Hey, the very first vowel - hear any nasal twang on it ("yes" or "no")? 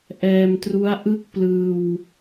no